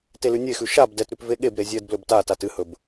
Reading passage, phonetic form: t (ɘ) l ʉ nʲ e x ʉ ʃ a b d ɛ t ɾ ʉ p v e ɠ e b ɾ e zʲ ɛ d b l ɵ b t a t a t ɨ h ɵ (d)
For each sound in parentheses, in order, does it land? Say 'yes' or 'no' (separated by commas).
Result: no, no